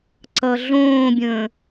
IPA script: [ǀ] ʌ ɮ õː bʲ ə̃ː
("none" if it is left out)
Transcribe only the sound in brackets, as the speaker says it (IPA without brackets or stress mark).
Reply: ǀ